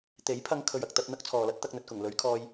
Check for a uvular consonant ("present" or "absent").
absent